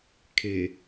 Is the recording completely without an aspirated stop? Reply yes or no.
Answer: no